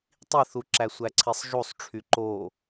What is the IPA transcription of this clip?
tˤ i θ u ǁ æ sʷ æ ǀʰ i sˤ ʒ u sˤ ʈ͡ʂʰ y ǃ o

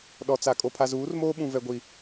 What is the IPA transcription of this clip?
ɗ ɔ˨ t͡s a˨ kʼ o˨ pʰ a˨ z uː˨˦ r m oː˦ ɓ ũ˨ v ɛ˨ ɡʷ i˨

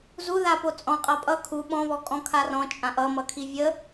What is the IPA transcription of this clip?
z u ð a p o t͡sʼ ɔ̃ qʼ a pʼ ʌ kʰ u ɓ ɔ̃ β ɔ kʼ ɔ̃ kʰ a r ɔ̃ t͡ʃʼ ã ʔ ʌ m ʌ kʰ i vʲ ə

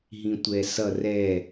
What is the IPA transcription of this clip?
ɦ ĩ tʷ ɛ s ʌ r ɛ

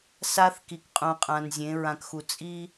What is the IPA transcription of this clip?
s a˦ θ k i˨ k qʼ ũ˨ qʼ ã˨ n zʲ ẽ˨˦ ɹ ã˨ k x u˨ t͡sʼ i˦

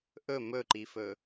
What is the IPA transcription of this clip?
ʔ ɵ m ɵ ǃ i f ɵ

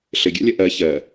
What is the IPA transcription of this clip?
ɬ ɘ ɡʲ a̰ lʲ ɐ ʔ ɜ ç ɜ

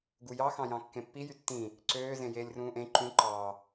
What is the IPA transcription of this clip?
ɡ u j ɑ x ɑ̃ j ɑ̃ kː ẽ pː i j y tː ĩ | ǀ øː z ẽ j eː lʲ r ũː ʔ ẽ ǃ ũ ǃ ɑ

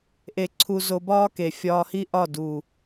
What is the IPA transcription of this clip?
ʔ e˧ ǀʰ u˧ z o˧ b ɒː˦ k e˨ fʲ ɒː˧ h i˦ ʔ ɒ˦˨ d u˨

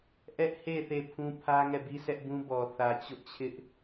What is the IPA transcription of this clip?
ʔ ɛ˦ ʔ h e˦˨ θ e˦˨ pʰ ũ˦ pʰ ä˦ ŋ ɛ˦˨ b i˦ sʰ ɛ˦ ʔ b ũ˦ b ɔ˨ θ ä˨ t͡ɕ ʊ˦ ʔ t͡ɕʰ ɪ˦ ʔ

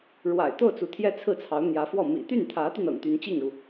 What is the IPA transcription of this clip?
ɻ w a̰˨˩ ɪ̯ t̪ o˥˩ ʊ̯ t͡s u˧˥ t̪ʰ j ɛ˥ t͡sʰ ɹ̩˥˩ t͡sʰ ɑ˧˥ ʊ̯ n̪ j ä˧˥ f w ɔ˥˩ m ḭ˨˩ t̪ y˥˩ n t̪ʰ ä˧˥ t̪ y˧ n ɤ̰˨˩ ŋ t̪ y˧˥ n t͡ɕ i˥˩ ŋ ɻ u˩

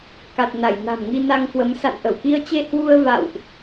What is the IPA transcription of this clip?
k a˨˩ t̚ n a˧˩ j n a̤˨˩ m ŋ i˧ n a˧ ŋ k w ə˨˦ m s a̰˧˨ n ʔ ə˧˩ w k i˧ ə̯ t͡ɕ e˧ h w u˧ ə̯ v a̰˧˨ w ʔ

